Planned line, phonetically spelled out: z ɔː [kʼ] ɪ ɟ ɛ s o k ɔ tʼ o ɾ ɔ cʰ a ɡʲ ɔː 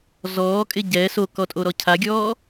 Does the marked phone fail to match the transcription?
no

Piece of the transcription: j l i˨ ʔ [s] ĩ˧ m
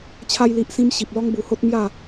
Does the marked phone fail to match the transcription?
no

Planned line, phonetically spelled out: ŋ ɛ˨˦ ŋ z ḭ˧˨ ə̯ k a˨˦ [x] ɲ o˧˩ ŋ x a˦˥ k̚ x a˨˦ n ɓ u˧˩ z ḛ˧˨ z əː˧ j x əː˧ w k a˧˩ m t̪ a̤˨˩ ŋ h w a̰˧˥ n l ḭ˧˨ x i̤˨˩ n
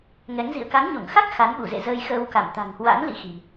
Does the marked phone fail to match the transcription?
yes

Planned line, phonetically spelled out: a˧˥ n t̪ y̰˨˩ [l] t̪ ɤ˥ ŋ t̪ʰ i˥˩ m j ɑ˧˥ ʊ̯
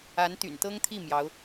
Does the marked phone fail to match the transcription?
yes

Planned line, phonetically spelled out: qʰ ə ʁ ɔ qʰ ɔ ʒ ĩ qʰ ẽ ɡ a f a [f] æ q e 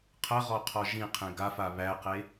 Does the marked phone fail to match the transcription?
yes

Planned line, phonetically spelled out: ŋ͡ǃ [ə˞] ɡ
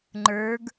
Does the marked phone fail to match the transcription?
no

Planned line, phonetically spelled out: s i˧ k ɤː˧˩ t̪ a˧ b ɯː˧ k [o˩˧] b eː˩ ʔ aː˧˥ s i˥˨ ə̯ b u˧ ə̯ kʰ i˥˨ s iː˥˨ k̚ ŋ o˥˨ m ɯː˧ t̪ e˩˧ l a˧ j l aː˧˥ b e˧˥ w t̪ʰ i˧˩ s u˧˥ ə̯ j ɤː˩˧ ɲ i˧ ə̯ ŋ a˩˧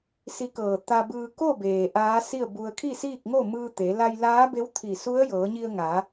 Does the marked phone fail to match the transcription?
yes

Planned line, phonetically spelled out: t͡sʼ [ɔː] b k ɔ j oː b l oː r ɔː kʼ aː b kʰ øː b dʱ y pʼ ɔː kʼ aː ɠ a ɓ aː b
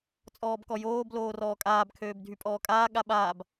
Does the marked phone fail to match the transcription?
no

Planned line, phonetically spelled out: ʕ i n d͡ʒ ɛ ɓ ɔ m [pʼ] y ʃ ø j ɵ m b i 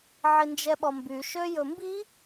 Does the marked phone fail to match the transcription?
yes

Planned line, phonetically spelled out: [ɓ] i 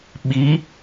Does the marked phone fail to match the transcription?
no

